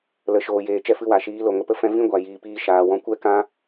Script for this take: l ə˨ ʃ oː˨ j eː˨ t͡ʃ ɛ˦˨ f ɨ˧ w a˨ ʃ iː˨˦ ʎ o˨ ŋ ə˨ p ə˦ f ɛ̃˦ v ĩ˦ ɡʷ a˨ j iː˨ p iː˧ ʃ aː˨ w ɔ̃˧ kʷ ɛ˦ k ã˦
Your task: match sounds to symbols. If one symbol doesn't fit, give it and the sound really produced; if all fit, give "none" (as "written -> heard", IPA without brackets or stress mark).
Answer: ʎ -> l